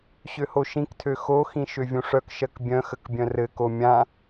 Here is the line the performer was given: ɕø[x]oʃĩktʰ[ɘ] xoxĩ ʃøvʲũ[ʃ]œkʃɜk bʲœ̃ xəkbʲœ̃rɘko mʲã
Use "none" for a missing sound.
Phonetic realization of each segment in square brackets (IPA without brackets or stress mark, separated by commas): h, ø, ʂ